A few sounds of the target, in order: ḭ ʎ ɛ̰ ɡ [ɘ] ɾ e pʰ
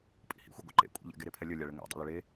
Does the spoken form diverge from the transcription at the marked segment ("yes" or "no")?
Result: yes